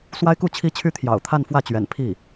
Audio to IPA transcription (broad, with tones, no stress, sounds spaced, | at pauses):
s w a˥ ɪ̯ k u˥˩ t͡ɕʰ i˥ t͡ɕʰ y˥ t̪ʰ j ɑ̰˨˩ ʊ̯ t̪ʰ a˥˧ n f w ä˥˩ t͡ɕ ɥ ɛ̰˨˩ n pʰ i˥˩